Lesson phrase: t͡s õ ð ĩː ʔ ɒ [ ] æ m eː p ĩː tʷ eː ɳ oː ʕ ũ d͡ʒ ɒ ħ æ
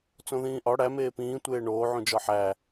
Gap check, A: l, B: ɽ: B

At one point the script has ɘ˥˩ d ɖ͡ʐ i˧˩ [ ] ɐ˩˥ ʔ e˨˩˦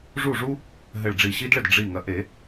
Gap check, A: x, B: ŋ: B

